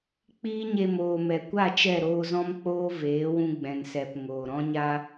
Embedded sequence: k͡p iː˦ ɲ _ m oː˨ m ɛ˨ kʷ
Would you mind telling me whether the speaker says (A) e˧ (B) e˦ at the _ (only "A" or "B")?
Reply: A